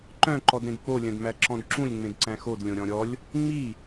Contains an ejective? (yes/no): no